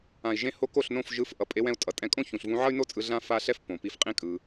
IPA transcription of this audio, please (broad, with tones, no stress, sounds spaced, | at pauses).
ã˨ i̯ ʒ ẽ˧ h o˧ k o˦˨ ɬ n õ˦˨ f ʒ ɯ˧ f ʔ ʌ˨ pʼ e˧ w ɛ̃˧ u̯ tʼ ʌ˨ tʼ ɛ̃˧ kʼ õ˦ ç ũ˨ ɬ v ũ˧ ʕ ʌ˦ y̯ n o˦ t͡sʼ ɯ˧ ɮ ã˦ f a˦ ɬ ɛ˦ f p õ˨ p i˧ f qʼ ĩ˦ kʼ ɯ˧